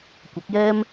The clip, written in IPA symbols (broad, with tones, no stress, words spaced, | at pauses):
kʷɐ˨˥k̚jɛː˥m